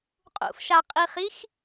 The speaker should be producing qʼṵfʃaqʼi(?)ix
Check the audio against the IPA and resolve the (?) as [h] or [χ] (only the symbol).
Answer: χ